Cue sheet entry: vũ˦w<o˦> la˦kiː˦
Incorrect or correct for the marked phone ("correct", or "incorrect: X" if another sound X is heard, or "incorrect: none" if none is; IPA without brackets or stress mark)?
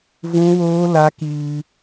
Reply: incorrect: oː˦